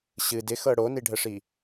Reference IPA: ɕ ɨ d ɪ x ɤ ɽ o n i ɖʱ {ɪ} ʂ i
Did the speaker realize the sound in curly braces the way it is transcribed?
no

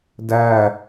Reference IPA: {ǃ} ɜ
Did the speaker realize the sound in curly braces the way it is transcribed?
no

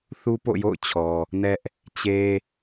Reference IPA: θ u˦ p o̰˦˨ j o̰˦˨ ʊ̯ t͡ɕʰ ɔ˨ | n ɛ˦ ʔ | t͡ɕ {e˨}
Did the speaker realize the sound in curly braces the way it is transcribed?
no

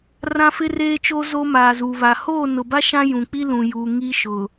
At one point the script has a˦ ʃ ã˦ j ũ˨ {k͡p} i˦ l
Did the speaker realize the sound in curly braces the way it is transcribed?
yes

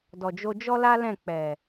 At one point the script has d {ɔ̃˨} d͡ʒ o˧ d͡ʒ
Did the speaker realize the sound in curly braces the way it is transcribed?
no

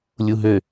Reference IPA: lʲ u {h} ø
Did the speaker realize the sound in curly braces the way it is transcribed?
no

